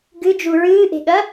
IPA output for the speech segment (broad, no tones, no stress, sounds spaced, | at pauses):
ɡ ɨ d͡ʒ u ɹ ɨː ʔ e̤ ɠ ɐ